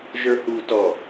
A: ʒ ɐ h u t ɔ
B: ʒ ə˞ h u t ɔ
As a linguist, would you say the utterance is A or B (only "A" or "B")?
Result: B